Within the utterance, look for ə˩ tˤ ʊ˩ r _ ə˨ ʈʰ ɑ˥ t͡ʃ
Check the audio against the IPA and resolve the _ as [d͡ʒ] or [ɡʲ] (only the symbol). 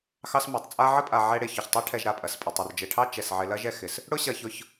d͡ʒ